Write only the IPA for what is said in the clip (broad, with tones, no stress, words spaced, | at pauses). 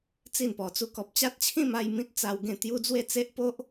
t͡si˥˧npɔ˧t͡su˦ kɔ˨p̚t͡ɕa˦t̚t͡ɕʰĩ˥˧ma˥˧j mĩ˦t̚ t͡sa˧wɡẽ˥˧t̪ju˦ d͡zwe˥˧t͡se˦ʔpo˦ʔ